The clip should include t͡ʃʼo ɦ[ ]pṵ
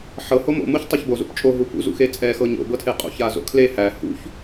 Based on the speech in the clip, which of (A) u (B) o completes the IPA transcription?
A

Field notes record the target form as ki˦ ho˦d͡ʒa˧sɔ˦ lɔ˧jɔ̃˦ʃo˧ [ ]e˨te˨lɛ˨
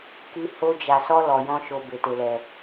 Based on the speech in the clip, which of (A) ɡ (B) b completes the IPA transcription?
B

